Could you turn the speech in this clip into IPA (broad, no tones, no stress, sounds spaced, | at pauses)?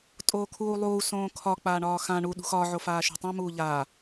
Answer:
tʼ oː kʰ uː lˠ uː s õː kʰ ɒ k͡p aː ɳ ɒː x ã ɳ u ɗ ṳ x ɒː ʕ o f aː ʃ ṳ tˤ ã m uː ʎ aː